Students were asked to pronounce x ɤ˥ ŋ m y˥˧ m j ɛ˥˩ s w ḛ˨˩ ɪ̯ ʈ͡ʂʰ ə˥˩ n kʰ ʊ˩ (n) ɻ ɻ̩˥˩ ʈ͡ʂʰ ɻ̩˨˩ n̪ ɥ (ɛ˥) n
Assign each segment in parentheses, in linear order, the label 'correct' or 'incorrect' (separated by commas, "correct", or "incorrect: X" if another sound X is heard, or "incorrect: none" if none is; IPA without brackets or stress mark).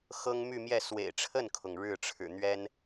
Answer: incorrect: ŋ, correct